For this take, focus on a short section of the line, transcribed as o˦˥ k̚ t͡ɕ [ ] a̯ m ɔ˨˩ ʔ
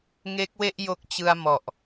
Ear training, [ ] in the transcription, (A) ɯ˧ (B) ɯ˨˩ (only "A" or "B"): A